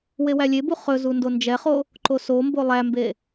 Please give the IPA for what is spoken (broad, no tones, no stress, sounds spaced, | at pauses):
w e w æ lʲ e b u χ ɵ z u n d o n d͡ʒ ɛ χ o | ǃ o s o m b o lˠ æ m b e